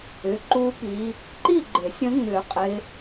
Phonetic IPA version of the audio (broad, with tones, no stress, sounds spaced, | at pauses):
ʏ˩˧˩ ǃ u˦˥ p i˨˦ | ǃ i˥˨ ɡ͡ǃ ɪ˨˩˦ sʲ ə̃˦˥ ŋ͡m ʏ˨˩˦ qʼ ɪ˨˦